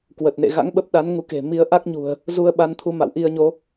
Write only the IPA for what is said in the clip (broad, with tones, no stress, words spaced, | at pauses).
kwə˨˩t̚nḛ˧˨ ɣa̰˧˥ŋɓə˦˥p̚ ɗa˨˦n ŋu˨˦ke̤˨˩ mi˨˦ə̯ ʔa˦˥k̚ɲṳ˨˩ə̯ | zu˧ə̯ɓa˧nt̪ʰu˧ ma̰˧˨wʔi˧ə̯ɲo˨˦